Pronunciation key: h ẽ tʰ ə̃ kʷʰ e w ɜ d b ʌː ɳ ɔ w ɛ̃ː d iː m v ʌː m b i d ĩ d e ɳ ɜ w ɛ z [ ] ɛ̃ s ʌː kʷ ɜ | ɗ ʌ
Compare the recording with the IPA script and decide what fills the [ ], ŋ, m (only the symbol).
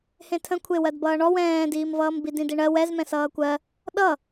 m